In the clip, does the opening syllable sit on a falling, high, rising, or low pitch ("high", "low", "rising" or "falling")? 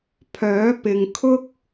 rising